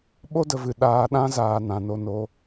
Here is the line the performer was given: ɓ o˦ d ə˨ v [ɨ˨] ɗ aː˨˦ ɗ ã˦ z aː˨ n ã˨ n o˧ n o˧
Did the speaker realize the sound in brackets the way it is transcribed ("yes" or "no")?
yes